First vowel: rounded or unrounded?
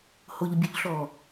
rounded